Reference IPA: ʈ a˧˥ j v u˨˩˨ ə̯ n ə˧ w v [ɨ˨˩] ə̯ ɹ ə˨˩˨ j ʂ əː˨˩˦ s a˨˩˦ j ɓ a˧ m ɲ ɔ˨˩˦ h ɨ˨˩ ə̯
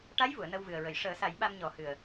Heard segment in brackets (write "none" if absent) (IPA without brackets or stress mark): ɨ˨˩